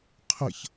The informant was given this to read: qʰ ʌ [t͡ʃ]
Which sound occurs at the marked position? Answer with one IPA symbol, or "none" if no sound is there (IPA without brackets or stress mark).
ç